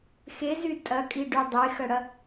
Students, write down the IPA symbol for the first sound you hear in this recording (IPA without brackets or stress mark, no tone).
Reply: x